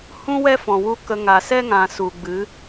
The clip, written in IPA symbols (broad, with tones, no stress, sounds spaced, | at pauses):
h ũ˦ w ɛ˦ f ɔ̃˨ w u˧ k ə˨ ŋ a˨ s ɛ˦ ŋ ã˨ s u˨ ɡ͡b ɨ˨˦